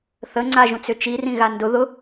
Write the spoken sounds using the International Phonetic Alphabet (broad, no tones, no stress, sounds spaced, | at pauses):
θ ə ŋ͡ǀ a ʒ ũ t͡s ʏ t͡ʃ i r ĩ ɣ a n d ʊ ð ʊ